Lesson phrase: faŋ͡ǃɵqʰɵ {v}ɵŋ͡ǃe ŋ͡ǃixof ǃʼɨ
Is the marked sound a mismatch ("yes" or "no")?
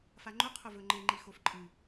no